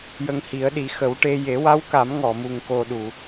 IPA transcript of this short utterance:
jə˧ŋhi˨˩˦ə̯ɗi˨˩˦ xə˨˩˦wʈe˧ je˨˩˦wa˧˥wka˨˩˦m ŋɔ˨˩˨mu˨˩ŋko˨˩ ɗu˨˩˨

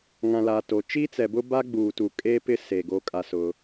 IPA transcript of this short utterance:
ŋã˨laː˨ to˨ t͡ʃiː˦t͡sɛ˨bʊ˦ba˦ ɡ͡buː˨tu˨kʼeː˦ pɪ˦ se˨ ɡo˦kʼa˦sʊ˦

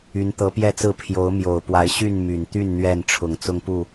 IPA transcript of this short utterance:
y˨˦nt̪ɤ˨˦pjɛ˥˨t͡sɹ̩˥˨ pʰjo˨˦ʊ̯mjo˨˩ʊ̯pwa˨˦ɪ̯ ɕy˥˨n my˨˩nt̪y˥˨n n̪ɥɛ˥˨n ʈ͡ʂʰʊ˨˩ŋt͡sʊ˦ŋpu˥˨

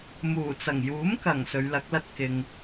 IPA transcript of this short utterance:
muː˨˩t͡sɐ˨˩ŋ juː˨˥mkɐ˨˩ŋ sɵ˨˧ɥlɐ˨˥k̚lɐ˥t̚ kɪ˧ŋ

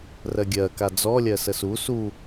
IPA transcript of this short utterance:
rɜɡʲɜka d͡zɔlʲɜ səsu su

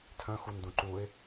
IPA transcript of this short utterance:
tʰœ̃xundũ ǃuɪ̯

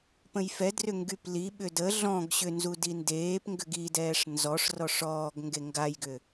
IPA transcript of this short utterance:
pə̃jfɛdrʏ ŋɡypliɓʏ də ɮɔ̃ɡ ɕʏnzu dindeːpŋɡʏɡ idɛːʂ nzɔʂrɔʂ ɔːɡ ŋɡeŋɡajɡʏ

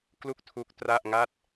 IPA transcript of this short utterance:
klu˥˩k̚tʰu˦˥k̚tra˥˩ʔŋa˥˩t̚

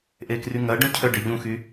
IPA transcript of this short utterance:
ʔekryŋɐ ɖœ̃cʰœɖe ʎũxy

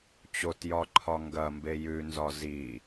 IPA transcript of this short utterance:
t͡ɕotjɒǃʰɒ ŋɡɐmbe jʉnzɒ zi

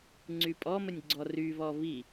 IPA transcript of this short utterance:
ŋ͡ǀypʼɔmənʲ ɡ͡ǀɔryβɔ βi

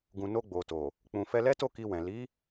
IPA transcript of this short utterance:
ɡũ˨no˧ ɡ͡bo˨to˨ | k͡pũ˨fɛ˧lɛ˦to˦˨ ki˧wɛ̃˨ li˨˦

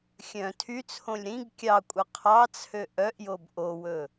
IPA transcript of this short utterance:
xʲœ̃ tʰyt͡sʰõlʲ ɾĩɡ kʲɑkʷʼœ qʰɑt͡sʰø ʔœʔjob ʔowɵ

